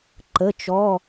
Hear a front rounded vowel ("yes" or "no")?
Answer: no